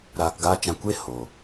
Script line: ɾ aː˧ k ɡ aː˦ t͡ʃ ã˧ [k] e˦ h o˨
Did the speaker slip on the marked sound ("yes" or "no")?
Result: yes